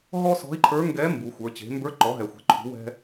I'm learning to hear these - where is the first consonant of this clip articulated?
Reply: throat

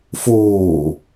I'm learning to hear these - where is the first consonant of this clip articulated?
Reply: lips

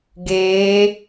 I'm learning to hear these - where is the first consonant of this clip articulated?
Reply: velum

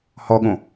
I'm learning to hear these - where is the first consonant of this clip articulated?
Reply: throat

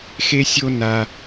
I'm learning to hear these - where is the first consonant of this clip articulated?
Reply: velum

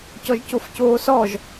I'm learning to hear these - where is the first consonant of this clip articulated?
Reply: palate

